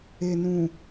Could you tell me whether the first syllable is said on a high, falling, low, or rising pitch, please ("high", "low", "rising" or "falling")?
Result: low